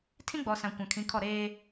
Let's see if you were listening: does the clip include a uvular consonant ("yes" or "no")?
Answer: no